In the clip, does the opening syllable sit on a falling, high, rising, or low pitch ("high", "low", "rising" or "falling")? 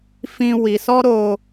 high